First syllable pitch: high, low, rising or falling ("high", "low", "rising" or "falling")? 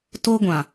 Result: high